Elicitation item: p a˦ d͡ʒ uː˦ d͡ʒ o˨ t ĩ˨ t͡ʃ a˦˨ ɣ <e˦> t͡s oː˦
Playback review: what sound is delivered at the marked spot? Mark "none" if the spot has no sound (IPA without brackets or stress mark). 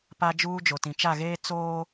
eː˦